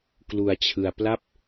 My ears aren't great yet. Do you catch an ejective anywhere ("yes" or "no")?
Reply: no